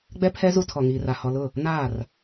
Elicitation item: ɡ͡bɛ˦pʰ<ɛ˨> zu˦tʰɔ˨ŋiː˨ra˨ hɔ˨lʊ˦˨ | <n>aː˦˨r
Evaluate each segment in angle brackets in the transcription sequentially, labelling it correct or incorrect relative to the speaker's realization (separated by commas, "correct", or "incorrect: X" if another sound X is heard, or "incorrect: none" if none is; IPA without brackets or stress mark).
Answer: incorrect: ɛ˦, correct